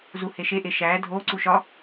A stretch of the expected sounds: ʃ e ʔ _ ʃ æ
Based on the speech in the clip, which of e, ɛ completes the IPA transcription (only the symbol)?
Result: e